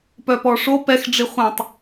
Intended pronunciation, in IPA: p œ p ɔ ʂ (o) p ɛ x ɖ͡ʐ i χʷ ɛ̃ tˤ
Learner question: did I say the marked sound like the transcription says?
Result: yes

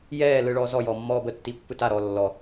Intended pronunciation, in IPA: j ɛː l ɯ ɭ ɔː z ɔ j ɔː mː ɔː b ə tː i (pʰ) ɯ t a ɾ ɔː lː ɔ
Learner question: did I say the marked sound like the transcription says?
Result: no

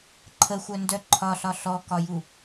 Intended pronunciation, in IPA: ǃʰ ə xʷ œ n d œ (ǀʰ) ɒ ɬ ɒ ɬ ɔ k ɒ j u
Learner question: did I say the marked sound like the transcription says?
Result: no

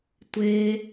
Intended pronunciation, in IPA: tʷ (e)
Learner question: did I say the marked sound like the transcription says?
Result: yes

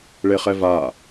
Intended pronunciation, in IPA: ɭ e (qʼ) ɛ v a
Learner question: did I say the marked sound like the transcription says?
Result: no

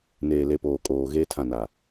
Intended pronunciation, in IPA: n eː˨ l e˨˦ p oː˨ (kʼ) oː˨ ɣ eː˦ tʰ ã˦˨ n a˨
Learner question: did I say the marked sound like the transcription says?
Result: yes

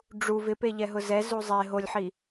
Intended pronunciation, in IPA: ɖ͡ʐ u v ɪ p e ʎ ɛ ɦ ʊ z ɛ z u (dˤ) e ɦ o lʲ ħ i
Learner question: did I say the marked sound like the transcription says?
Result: no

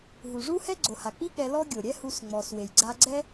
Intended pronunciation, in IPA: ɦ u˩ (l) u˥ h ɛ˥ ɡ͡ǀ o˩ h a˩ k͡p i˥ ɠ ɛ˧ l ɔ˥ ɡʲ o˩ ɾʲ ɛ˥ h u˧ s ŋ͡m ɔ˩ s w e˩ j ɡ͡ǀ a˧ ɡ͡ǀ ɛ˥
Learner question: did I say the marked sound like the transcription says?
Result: no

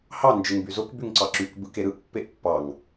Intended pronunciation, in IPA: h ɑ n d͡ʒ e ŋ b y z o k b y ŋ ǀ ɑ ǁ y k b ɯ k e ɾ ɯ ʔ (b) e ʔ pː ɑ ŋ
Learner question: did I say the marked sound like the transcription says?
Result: no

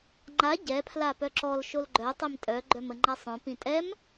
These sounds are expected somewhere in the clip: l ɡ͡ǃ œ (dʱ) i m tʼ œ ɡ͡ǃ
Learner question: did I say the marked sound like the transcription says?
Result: no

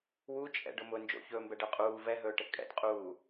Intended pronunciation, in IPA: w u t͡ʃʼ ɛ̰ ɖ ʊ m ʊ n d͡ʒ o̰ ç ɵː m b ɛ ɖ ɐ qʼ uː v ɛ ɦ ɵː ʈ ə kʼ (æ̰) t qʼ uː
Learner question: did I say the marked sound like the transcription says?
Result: no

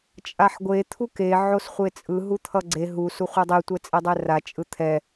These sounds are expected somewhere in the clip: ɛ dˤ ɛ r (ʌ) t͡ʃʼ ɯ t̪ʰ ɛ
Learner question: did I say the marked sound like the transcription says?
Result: no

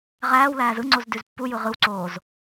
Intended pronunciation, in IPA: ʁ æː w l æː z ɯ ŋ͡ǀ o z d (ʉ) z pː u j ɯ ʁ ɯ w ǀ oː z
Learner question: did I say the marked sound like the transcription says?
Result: yes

